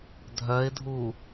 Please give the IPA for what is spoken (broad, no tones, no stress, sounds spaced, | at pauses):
dʱ œ ɪ̯ dʱ u